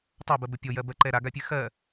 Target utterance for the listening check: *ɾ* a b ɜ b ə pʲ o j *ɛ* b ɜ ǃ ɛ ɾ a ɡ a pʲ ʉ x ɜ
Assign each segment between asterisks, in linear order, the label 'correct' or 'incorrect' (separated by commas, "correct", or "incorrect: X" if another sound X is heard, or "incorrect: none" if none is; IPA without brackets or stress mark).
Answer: incorrect: tˤ, incorrect: ɜ